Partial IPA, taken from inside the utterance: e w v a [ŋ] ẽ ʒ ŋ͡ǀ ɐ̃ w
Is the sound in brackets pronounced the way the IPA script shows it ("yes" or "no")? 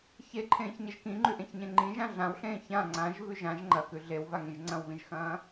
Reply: yes